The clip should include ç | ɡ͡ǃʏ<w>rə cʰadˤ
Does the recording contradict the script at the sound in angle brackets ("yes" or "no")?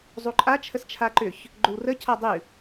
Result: no